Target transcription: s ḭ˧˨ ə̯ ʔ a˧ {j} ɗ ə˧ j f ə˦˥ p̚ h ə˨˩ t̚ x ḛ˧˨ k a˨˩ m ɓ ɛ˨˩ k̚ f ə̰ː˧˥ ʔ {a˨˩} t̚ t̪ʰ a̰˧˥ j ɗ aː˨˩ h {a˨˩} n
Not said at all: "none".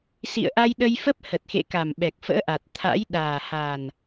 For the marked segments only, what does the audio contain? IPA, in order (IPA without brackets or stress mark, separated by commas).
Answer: j, a˨˩, a˨˩